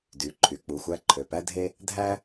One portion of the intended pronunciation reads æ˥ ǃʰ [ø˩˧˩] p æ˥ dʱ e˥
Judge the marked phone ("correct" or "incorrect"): correct